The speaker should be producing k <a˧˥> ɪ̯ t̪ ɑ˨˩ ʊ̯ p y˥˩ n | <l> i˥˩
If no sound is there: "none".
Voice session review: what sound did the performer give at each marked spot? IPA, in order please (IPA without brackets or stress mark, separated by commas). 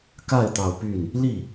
a˥˩, l